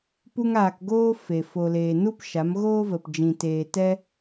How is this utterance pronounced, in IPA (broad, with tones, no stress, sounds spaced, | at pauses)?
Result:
p u˦ ŋ aː˧ k ɡ oː˦ f e˨ f o˨ l eː˨ n u˦ p ʃ a˨˦ m ɣ oː˦ v ə˨ p d͡ʒ ĩ˨ t eː˨ t ɛ˧